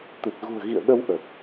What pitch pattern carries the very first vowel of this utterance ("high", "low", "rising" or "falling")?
low